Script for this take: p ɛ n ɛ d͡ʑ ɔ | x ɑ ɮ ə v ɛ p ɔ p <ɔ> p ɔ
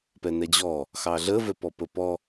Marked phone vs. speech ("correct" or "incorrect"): incorrect